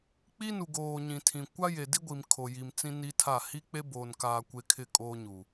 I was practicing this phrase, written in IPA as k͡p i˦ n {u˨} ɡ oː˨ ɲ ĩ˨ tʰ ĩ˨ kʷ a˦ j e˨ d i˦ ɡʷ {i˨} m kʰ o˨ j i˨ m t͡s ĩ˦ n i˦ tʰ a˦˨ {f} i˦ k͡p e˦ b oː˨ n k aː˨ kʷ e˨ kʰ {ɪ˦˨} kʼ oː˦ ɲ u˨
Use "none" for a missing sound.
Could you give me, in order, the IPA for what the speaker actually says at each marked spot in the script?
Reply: u˨, i˨, h, ɪ˦˨

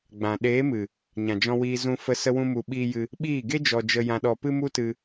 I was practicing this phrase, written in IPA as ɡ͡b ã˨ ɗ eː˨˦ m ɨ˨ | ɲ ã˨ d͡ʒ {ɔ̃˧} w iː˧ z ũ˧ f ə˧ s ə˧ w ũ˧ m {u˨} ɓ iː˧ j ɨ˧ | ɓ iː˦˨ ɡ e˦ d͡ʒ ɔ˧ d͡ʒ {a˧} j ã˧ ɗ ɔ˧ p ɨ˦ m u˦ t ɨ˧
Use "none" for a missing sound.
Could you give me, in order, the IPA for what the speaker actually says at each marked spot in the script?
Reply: ɔ̃˧, u˨, ə˧

